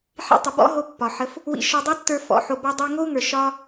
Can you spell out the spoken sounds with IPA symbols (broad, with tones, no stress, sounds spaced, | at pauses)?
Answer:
ħ ḭ˧ tˤ ə˨ b ɔ̰˦ ɦ o˧ pː ɒ˨ ħ ə˧ f | w ḭ˧ ʃ ɔ˧ dˤ i˦ tː ə˞˧ f ɔ̰˨ ħ o˧ b ɔ˦ dˤ i˧ ŋ o˦ u̯ ŋ ə˞˨ ʃ ɒ˦